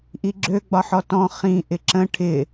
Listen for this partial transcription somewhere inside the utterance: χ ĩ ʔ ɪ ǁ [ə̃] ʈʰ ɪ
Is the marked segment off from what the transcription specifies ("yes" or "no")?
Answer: no